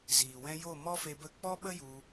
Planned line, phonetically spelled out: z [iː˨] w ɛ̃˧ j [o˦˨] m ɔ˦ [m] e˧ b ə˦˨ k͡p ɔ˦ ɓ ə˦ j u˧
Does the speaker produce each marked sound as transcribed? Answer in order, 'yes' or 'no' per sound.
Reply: yes, yes, no

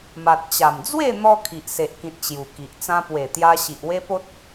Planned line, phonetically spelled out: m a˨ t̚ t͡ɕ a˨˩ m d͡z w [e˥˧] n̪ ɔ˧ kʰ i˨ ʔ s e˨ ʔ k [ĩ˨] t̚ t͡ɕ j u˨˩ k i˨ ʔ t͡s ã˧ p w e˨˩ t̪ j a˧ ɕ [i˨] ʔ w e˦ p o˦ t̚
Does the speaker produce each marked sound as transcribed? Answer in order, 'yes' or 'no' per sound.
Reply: yes, yes, yes

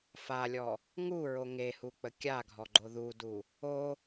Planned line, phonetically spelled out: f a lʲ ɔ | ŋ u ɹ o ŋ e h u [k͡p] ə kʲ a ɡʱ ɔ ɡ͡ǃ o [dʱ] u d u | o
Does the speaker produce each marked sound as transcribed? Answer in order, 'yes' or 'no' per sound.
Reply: yes, no

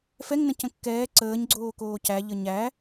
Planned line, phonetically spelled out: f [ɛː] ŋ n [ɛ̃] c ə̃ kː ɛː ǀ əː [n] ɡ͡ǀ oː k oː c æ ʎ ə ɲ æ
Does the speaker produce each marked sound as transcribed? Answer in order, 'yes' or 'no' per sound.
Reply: no, no, no

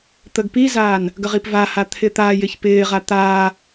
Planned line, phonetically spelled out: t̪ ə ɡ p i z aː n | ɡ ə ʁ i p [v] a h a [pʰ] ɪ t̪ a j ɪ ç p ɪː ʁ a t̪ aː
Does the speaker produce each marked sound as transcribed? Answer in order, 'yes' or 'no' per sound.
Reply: yes, no

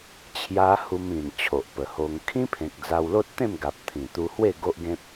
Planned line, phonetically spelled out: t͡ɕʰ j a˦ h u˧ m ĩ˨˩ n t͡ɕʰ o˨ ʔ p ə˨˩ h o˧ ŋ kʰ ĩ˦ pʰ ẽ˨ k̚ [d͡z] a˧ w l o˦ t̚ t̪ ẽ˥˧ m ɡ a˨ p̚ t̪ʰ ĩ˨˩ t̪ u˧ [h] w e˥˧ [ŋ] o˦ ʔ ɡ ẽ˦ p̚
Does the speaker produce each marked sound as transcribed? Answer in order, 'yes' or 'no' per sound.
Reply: yes, yes, no

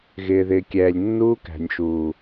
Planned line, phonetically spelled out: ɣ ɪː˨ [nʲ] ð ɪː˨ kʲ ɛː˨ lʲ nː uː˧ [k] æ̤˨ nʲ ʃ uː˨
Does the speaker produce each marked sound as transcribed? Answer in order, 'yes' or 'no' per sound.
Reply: no, yes

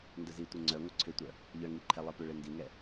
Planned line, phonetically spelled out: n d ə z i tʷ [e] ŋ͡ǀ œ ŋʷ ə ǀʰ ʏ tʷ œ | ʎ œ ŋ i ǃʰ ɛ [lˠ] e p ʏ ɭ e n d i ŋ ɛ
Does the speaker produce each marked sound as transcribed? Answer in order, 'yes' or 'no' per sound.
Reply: yes, yes

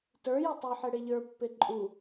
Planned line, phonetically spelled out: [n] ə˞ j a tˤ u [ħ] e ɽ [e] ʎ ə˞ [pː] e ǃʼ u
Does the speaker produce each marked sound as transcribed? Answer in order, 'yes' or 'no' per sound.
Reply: no, yes, yes, yes

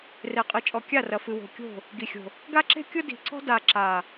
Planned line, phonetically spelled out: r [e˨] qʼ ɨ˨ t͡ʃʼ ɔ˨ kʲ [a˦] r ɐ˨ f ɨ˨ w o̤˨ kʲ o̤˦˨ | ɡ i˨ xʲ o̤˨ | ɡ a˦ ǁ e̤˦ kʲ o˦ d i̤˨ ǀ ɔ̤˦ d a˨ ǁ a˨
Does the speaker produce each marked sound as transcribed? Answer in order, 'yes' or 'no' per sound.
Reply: yes, no

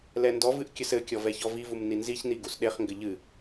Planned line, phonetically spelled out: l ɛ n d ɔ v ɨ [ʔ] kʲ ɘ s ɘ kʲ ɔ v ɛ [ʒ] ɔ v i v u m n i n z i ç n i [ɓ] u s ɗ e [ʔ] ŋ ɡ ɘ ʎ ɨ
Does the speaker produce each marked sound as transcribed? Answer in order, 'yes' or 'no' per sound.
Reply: yes, no, no, no

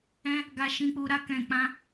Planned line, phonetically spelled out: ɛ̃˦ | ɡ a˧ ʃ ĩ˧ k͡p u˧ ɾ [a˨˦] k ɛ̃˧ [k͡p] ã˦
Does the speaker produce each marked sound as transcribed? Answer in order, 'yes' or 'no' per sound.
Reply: no, yes

